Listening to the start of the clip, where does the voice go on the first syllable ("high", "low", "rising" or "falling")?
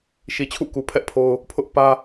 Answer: low